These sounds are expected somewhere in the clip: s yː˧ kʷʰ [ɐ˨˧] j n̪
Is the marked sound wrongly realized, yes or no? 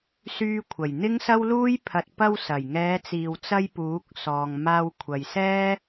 yes